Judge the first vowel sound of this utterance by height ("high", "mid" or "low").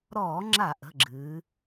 mid